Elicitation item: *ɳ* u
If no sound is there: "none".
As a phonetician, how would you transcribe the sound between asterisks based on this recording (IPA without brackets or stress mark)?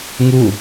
ŋ